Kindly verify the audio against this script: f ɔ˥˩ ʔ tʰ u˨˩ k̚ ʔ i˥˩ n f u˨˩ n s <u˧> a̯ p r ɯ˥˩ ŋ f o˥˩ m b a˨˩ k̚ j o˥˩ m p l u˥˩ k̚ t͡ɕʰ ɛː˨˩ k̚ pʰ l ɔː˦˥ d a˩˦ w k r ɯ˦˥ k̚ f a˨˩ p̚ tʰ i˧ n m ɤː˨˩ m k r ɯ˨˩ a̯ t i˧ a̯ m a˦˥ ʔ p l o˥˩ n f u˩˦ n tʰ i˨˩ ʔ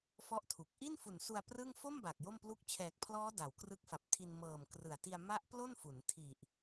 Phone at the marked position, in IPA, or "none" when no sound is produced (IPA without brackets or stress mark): u˧